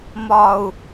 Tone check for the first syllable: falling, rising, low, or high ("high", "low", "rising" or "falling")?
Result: low